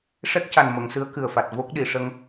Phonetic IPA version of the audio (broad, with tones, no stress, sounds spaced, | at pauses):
ʂ ɛ˦˥ k̚ c a˨˩ n m ə˨˩˨ ŋ s ɨ˧˥ ə̯ k ɨ˨˩ ə̯ f a˨˩ t̚ v o˦˥ k̚ ɗ i˨˩˨ ʂ ə˧ ŋ